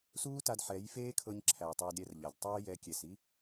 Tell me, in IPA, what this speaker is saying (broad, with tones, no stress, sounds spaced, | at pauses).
s uː˦ t a˧ d ħ ɛ˨˦ j f eː˦ kʰ ɤ˧ ɲ ǁʰ æ˨ tˤ eː˧ d ɾʲ ɛ˧ r ʎ a˨ d tˤ ə˞˦ j ɛ˨˦ kʲ ɛ˨ s i˦